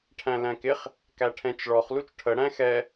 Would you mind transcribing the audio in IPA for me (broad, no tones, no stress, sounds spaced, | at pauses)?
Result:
ʈʰ æ̃ l æ̃ k ɪ χ | k æ ʈʰ ɛ̃ t͡ʃ ɭ ɔ χ l u t͡ʃ ʈʰ ə ɽ æ̃ x ɛ